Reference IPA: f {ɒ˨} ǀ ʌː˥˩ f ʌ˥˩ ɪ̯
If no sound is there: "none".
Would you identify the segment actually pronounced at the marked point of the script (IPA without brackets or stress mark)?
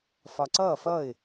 ɒ˨